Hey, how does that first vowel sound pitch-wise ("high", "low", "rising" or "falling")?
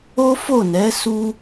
high